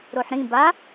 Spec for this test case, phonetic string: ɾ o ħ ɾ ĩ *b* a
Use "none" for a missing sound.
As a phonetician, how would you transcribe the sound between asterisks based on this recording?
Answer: b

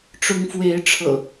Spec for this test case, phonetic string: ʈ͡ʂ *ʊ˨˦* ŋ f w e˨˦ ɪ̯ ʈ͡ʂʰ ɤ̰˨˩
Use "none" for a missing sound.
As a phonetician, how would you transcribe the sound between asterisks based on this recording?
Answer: ʊ˨˦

